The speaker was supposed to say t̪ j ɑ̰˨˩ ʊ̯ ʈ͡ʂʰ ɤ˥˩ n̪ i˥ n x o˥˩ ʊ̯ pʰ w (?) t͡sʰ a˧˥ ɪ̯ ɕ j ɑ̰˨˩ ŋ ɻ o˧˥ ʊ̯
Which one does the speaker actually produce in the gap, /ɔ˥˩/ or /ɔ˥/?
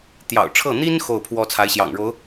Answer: ɔ˥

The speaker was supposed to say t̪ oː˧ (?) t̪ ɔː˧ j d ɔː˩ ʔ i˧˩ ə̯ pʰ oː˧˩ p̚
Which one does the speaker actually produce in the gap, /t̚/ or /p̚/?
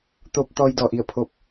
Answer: p̚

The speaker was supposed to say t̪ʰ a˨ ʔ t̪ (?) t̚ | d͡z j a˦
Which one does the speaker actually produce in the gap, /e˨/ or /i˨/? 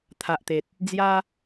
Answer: e˨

